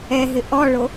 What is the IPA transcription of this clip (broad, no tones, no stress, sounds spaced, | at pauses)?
ɛ ɦ ɪ ʔ ɔ ɭ o